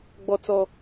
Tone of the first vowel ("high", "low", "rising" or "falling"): high